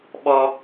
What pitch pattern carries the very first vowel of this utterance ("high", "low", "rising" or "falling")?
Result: high